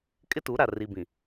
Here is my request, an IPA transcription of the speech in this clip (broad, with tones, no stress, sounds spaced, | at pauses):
kʼ ɪ˦ t u˨˦ ɾ a˨ r i˨ b ĩ˨